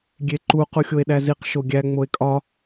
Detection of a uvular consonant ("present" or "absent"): present